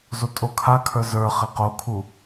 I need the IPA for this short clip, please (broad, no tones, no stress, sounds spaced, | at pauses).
z o tʼ o kʰ a kʰ ə˞ z ə˞ χ e q o kʰ u